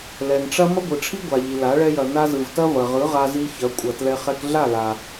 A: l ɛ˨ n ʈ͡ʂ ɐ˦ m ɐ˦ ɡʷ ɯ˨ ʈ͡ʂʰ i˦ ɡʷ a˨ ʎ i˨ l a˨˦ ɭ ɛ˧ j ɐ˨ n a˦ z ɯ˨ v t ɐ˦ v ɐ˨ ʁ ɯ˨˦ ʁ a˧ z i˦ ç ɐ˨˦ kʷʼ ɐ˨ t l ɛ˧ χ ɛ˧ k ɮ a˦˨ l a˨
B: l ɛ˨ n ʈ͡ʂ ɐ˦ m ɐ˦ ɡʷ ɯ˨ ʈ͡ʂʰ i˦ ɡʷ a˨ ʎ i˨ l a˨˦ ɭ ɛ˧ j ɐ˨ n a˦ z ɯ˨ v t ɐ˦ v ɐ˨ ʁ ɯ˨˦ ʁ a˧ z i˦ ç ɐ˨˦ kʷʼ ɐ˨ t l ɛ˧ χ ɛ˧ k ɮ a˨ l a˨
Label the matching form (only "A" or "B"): A